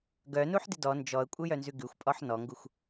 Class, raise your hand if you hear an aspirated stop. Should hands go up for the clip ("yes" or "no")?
no